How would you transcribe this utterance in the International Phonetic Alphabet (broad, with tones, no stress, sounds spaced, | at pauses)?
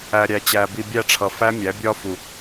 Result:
æ˨ ɾʲ æ˨ t͡ɕ æ˨ b i˨ bʲ æ˦˨ ʈ͡ʂʰ ʌ˨ f æ˦ mʲ æ˨˦ bʲ ɒ˦ f u˨